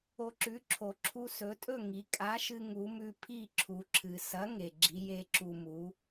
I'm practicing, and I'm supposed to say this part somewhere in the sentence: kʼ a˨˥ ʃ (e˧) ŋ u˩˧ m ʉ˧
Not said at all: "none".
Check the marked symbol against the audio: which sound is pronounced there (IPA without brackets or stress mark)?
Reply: ɨ˧